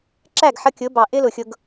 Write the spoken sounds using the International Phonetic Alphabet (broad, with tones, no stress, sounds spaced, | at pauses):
ǁ æ˦˨ ɡ ħ ʌ˧ kʲ ʊ˨˦ b ɑ˨ ʔ ɪ˦ l ʊ˨ xʲ ʊ˧ ɡ